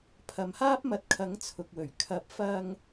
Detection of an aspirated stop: present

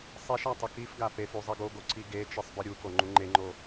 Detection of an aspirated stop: absent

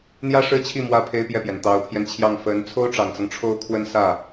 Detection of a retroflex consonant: present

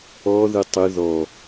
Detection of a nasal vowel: absent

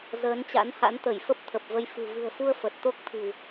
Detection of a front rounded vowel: absent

